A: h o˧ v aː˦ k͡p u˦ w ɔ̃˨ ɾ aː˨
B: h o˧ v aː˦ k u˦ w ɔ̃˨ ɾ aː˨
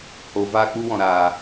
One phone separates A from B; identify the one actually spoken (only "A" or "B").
A